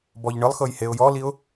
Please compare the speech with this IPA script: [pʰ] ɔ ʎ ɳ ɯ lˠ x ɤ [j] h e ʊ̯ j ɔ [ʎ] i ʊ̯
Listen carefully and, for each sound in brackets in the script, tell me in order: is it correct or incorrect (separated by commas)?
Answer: incorrect, correct, incorrect